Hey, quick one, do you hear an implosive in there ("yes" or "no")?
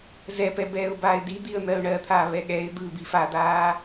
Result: yes